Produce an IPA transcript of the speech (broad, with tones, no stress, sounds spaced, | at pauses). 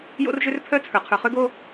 j o̰˦ r ʒ ø˦ r pʰ œ˦ t͡sʰ ə˞˨ qʰ ə˞˨ χ ø˦ ɡ o˦